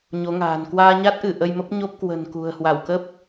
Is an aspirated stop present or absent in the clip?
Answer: absent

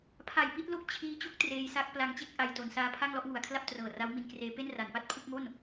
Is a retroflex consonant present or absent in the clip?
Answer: absent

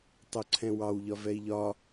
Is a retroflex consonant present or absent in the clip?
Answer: absent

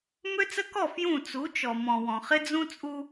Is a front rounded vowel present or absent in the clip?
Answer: present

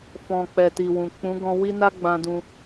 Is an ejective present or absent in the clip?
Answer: absent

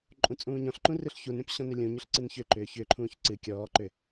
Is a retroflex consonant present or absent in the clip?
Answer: absent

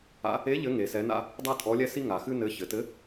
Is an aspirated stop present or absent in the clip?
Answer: absent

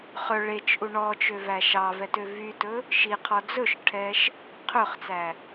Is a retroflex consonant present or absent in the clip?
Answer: present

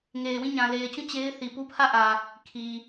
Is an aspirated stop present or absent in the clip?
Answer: present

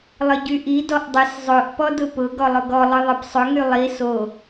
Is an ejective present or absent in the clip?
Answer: absent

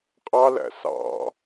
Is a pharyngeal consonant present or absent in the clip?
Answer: absent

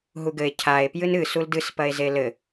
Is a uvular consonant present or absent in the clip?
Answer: absent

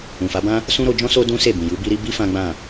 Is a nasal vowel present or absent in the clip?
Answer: present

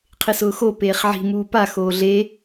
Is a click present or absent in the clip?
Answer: absent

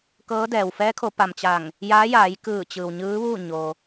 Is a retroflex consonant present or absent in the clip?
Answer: absent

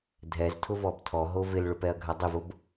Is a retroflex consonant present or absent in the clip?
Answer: present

